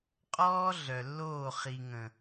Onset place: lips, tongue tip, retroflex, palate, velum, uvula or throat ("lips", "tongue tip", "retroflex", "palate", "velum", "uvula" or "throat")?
uvula